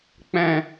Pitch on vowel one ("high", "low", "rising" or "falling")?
low